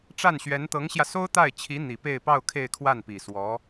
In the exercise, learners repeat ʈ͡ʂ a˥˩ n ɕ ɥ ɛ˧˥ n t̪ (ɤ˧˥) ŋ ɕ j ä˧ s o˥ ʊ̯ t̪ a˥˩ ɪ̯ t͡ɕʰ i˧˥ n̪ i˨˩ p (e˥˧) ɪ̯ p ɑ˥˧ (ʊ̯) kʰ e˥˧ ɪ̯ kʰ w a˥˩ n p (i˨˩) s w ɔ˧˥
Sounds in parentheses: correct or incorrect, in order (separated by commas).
correct, correct, correct, correct